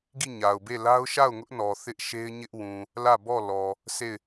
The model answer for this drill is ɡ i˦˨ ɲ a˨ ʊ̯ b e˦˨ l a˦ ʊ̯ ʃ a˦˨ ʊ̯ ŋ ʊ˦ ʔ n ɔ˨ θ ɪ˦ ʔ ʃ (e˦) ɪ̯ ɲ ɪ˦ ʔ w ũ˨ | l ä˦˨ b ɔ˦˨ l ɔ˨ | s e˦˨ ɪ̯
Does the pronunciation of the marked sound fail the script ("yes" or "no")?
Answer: no